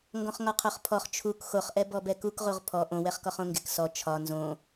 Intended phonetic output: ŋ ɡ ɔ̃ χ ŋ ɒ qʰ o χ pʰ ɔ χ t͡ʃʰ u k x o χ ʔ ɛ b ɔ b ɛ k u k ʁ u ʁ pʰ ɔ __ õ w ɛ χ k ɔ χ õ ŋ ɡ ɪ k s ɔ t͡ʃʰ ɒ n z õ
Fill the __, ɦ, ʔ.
ʔ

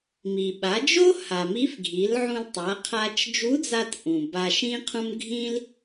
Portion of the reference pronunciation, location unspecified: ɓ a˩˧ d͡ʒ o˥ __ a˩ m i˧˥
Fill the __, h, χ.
h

